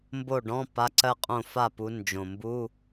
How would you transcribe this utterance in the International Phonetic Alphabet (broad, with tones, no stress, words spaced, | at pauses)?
mbo˥˩ɖɔ̃˧˥˧ pa˧˥˧ǀɜ˥˧qʼõ˥˩ fa˥˩pu˨˦ nd͡ʒõ˨˩ mbu˧˥˧